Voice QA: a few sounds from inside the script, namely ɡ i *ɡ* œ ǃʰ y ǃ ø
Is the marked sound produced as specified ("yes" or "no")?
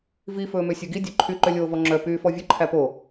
no